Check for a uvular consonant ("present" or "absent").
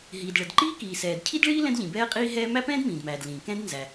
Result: present